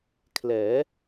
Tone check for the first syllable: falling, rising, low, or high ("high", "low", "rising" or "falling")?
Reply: rising